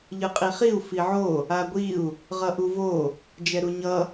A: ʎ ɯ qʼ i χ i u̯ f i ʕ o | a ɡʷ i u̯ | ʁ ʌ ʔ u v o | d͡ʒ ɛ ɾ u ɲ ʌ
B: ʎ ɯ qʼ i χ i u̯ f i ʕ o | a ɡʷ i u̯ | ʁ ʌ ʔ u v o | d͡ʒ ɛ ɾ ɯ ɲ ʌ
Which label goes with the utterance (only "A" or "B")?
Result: A